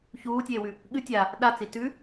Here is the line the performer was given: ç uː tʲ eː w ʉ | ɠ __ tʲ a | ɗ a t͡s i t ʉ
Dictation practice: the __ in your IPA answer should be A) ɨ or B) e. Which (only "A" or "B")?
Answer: A